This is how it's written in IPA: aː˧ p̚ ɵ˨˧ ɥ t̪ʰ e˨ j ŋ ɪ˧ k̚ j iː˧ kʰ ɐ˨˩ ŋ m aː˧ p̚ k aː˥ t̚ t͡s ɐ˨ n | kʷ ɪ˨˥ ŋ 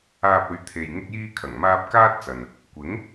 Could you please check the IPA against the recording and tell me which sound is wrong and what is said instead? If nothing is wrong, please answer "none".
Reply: none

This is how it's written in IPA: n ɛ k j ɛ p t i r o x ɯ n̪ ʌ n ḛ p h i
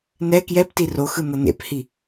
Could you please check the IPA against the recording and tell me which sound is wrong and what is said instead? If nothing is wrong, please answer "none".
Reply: none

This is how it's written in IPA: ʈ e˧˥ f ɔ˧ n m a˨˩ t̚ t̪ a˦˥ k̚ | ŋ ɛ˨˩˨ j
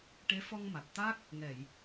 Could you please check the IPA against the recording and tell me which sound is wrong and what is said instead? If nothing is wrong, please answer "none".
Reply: n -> ŋ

